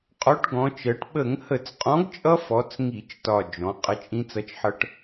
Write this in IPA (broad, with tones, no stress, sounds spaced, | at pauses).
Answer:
qʼ ɔ˨˥ ʈ ɡ ɔ̃˩˧ t͡ʃ ɜ˩˧ ʈ ɓ ə˧˩˧ ŋ h ə˧˩˧ t͡s qʼ ɔ̃˨˥ ɡ t͡ʃʼ ʌ˦ f ɔ˩˧ t͡s ŋ i˧˩˧ t͡ʃ t ɒ˨˩ d͡ʒ ɔ̃˩˧ qʼ ə˨˥ t͡ʃʼ ĩ˦ t͡s ʌ˨˥ t͡ʃ ħ ʌ˦ ʈ